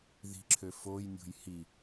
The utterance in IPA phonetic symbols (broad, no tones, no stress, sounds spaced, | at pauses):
ð i̤ ǁʰ ø f o j nʲ o̤ j h i